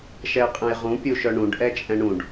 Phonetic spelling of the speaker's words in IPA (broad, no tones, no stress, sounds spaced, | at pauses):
ʃ ɛ ə̯ qʼ ɛ̃ j ʁ ũ pʲ u ʃ œ ɳ ũ ɖ ʔ ɛ t͡ʃʼ ɛ̃ ɳ ũ ɖ